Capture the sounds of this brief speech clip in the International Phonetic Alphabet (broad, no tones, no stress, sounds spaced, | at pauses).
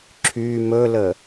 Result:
ǁʰ y m ɵ l ə